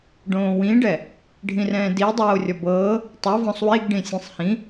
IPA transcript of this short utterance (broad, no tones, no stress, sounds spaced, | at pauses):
ɖ õː w ĩ ɖ ɛ | ɖʱ ĩ r ɛ̃ː d i dˤ oː rʲ ɔ b ɤː | tˤ o v ɔ̃ sˤ w i ɡ ɖ ĩ sʲ ẽ sˤ h ĩ